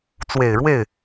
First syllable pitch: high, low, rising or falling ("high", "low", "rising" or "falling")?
low